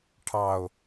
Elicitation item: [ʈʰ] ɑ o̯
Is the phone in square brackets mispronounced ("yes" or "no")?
no